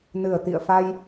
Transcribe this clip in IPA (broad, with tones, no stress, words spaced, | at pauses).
nɨ˧˩ə̯t̪ḭ˧˨ə̯fa˧j